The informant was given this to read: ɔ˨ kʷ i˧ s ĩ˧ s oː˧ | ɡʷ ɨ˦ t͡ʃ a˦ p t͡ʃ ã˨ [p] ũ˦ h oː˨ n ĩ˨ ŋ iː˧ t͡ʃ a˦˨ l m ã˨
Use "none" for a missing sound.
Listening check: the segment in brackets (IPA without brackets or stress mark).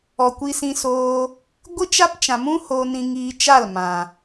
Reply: m